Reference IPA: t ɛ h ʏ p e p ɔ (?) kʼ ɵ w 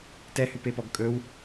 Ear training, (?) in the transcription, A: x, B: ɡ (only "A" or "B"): B